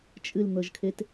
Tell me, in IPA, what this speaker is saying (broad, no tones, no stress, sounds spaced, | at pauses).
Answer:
t͡ʃʼ ɨ l n̪ ɤ ʒ kʰ e t